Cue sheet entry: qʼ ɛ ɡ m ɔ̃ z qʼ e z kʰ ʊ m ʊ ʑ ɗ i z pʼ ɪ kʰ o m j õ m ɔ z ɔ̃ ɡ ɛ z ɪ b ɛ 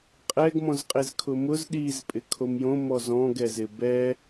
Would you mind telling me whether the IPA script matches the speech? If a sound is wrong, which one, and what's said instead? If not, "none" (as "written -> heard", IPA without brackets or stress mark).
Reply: ʑ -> z